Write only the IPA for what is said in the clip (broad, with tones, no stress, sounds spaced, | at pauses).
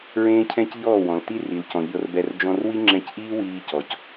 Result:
ɹ ẽː˦ cʰ ɛ̃˦ c ʎ ɔː˦˨ w ɔ̃˨ l t i˦ r i˨ l c ɔ̃˨ ʎ ɤ˧ r b ɛ˧ r d͡ʒ ɔ̃˧ r w i˦ ŋ͡ǁ ɛ̃˧ c ʔ iː˦ w iː˧ c ɔ˨ c